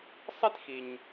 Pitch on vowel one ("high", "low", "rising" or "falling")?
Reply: high